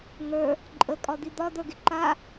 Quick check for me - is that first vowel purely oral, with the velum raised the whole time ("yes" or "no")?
yes